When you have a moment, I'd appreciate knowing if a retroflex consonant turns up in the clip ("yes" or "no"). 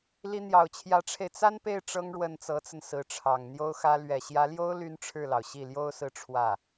yes